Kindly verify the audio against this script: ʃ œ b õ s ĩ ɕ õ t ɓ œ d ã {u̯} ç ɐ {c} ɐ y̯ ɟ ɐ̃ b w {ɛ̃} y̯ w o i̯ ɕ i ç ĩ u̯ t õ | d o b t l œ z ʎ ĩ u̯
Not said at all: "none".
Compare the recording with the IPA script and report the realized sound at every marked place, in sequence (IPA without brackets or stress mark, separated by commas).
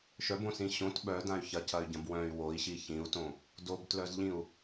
y̯, c, œ̃